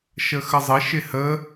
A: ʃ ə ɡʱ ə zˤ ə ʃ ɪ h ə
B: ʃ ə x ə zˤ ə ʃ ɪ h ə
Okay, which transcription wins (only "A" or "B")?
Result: B